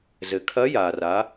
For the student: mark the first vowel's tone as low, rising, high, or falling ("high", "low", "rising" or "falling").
low